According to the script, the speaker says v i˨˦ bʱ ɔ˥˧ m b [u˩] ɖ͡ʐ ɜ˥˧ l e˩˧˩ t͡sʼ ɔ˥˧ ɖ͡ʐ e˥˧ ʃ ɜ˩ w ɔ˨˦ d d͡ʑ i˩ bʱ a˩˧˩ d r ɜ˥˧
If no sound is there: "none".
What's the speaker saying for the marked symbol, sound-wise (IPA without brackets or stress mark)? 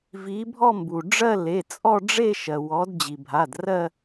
u˩